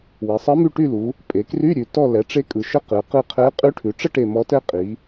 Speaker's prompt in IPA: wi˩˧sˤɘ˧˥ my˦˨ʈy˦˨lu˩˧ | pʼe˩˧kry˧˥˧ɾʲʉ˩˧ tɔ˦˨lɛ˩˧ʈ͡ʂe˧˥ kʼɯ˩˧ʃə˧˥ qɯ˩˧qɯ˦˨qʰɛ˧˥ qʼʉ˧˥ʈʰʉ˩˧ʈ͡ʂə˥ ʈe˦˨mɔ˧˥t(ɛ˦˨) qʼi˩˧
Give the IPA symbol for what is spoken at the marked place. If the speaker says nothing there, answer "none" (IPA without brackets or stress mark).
ɛ˥